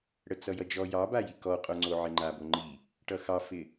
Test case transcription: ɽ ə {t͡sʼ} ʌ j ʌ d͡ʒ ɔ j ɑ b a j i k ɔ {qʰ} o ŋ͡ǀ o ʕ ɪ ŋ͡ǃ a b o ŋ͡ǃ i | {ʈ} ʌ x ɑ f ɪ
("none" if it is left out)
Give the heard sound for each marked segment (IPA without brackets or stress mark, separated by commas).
t͡s, qʼ, ʈ